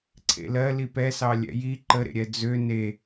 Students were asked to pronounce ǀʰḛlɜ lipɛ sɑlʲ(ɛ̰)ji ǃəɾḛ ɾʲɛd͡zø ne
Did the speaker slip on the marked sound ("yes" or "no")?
no